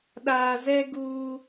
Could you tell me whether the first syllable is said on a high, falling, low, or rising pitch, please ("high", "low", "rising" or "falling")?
low